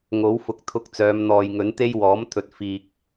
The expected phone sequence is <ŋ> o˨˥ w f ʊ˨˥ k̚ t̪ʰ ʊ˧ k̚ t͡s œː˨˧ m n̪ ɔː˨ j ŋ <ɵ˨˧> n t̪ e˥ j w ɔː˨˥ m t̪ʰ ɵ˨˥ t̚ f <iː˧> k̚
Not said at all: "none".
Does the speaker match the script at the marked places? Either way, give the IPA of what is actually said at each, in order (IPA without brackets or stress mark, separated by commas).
ŋ, ɵ˨˥, iː˧